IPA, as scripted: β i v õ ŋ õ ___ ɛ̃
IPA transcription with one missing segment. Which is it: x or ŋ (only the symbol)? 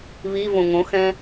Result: x